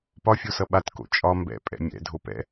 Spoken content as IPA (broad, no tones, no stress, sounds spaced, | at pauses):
p ɒ fʲ o s ʌ ɓ a t k o̰ t͡ʃʼ ɒ m b ɛ̰ pʼ ɛ̰ mʲ ɛ̰ dʱ o p ɛ̰